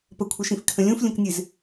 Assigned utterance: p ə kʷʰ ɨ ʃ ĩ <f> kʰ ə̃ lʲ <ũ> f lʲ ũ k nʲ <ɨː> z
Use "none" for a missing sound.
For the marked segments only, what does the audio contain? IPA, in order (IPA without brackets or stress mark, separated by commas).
f, ũ, ɨ